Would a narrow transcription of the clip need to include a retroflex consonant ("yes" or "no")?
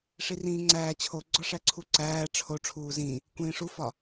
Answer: yes